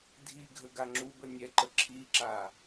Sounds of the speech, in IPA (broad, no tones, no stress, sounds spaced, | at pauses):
dʱ i ɡʱ ə ɡ a ŋ͡ǁ u b ə nʲ ɛ ǃ ə ǁʰ i ǁ a